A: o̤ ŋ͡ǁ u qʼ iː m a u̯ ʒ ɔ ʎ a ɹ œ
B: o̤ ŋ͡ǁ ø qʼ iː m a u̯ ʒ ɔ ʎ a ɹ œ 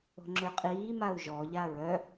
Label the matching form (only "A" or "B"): B